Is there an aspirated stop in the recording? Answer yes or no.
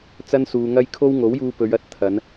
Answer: yes